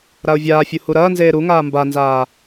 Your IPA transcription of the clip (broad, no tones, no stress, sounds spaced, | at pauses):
ɾ a ʊ̯ vʲ aː fʲ u h u ɾ ɐː n z eː ɾ u ŋ aː m b a n z aː